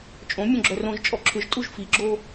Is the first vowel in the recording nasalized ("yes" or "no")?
yes